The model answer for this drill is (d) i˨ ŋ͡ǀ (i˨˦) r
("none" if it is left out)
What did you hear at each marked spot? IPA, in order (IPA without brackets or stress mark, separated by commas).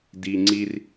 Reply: d, i˦